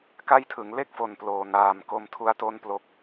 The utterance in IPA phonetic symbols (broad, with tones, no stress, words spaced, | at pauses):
ka˥˩jtʰɯ˩˦ŋ le˦˥k̚fo˨˩n ploː˨˩naː˨˩mko˧mtʰu˦˥a̯ to˥˩nplo˦˥k̚